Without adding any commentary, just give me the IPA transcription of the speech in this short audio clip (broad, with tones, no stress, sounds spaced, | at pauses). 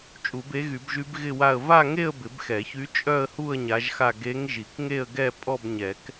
t͡ʃʼ u˨˩˦ b e˧˥ ɣ y˨˩˦ b ʒ y˧˥ b ɣ ɪ˥˧ w a˥˧ ə̯ v a˥˧ ŋ e˥˧ ə̯ b ɪ˨˩˦ b x ɛ˨˩˦ ç y˧˥ t͡ʃʼ œ˥˧ ə̯ h u˥˧ ə̯ ɲ a˧˥ ʒ x a˥˧ ɡ e˧˥ ŋ ʒ i˨˩˦ k ŋ e˥˧ ə̯ ɡ ɛ˥˧ pʼ ɔ˥˧ b ɲ ɛ˨˩˦ k